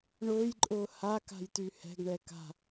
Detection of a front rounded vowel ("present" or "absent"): present